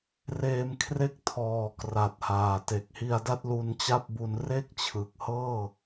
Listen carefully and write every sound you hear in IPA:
reː˧mkʰre˥˩k̚tʰɔː˨˩ kra˨˩t̚haː˨˩ te˨˩k̚hi˧a̯ da˥˩t̚lu˧nt͡ɕa˥˩p̚bu˧n re˥˩k̚t͡ɕʰɯ˨˩k̚hɤː˥˩

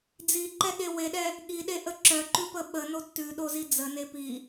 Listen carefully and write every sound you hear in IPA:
d͡ziǃɛɠe weɗɛ | ɠiɗeʔə ǁœǃʉpə ɓənod tʉɗozi d͡zəne pi

